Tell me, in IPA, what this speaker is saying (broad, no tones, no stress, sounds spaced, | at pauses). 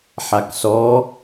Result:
ħ a k s ɔ